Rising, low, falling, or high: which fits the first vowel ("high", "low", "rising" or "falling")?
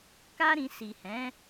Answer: high